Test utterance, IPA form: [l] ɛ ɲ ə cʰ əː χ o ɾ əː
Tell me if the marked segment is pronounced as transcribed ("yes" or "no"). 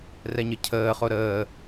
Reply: no